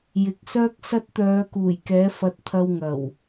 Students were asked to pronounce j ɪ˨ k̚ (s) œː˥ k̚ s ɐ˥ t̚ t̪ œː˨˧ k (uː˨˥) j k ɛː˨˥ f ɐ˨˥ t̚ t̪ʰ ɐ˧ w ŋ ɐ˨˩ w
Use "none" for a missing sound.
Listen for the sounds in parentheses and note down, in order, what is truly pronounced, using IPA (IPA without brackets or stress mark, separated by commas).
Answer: s, uː˨˩